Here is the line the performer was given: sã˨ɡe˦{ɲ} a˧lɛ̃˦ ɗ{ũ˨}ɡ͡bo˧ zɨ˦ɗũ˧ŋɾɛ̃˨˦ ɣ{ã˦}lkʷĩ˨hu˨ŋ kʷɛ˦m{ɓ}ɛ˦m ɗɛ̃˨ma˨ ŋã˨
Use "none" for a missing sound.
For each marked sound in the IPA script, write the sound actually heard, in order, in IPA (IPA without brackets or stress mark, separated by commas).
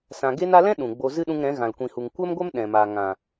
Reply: n, ũ˨, ã˨, ɡʷ